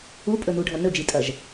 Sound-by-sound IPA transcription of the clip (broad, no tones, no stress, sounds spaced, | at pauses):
u pʼ ɵ n u ɖʱ ɐ n ɵ d͡ʒ i tʼ ɐ ʒ